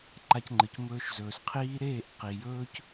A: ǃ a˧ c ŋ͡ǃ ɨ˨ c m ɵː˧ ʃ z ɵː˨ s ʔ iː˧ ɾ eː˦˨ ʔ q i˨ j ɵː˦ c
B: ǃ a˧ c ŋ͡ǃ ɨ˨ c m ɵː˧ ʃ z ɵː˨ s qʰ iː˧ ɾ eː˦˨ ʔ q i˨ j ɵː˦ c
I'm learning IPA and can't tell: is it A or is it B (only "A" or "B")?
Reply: B